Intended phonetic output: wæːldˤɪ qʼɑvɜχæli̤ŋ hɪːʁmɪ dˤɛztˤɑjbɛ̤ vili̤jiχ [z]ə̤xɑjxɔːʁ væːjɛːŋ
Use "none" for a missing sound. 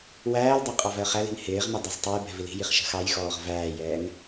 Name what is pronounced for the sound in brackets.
ʃ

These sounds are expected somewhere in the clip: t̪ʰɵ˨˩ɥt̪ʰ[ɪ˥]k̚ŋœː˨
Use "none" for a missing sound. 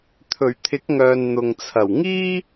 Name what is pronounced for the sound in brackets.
ɪ˨˥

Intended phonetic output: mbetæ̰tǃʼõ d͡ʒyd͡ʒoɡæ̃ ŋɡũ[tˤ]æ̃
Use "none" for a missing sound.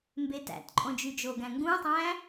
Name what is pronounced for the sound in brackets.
tˤ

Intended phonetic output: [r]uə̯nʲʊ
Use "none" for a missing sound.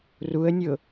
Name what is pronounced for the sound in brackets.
r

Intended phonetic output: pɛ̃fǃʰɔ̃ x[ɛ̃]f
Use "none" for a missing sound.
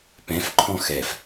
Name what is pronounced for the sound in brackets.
ɛ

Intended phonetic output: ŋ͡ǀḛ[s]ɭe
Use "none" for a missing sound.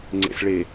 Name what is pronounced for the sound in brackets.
s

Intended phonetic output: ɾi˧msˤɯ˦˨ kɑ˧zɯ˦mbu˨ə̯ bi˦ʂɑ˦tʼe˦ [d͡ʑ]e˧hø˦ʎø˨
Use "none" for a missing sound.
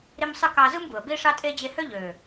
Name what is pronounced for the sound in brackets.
d͡ʑ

